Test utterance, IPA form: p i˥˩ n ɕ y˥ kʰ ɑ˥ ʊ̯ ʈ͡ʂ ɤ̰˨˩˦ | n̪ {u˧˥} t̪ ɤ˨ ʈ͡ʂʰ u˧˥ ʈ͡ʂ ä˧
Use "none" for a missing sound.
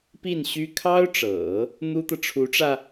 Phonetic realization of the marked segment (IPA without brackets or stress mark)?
u˥